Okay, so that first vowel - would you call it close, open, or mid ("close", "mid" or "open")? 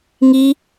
close